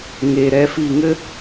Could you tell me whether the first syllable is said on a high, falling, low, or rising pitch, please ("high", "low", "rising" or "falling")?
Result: low